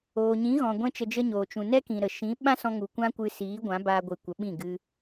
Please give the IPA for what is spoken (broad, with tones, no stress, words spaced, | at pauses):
oː˨ɲĩ˨˦ɣɔ̃˨ ɡʷɛ̃˦t͡ʃə˧d͡ʒə˦ɲoː˨ t͡ʃũ˨nɛ˦kĩ˨ ɾə˨ ʃĩ˨˦ ɓã˦sɔ̃˧ŋu˨ kʷã˦kʷɨ˧ siː˨˦ ɡʷã˨˦baː˧ɡʷɨ˨ kʷə˨˦ɓĩ˦˨ ɡɨ˧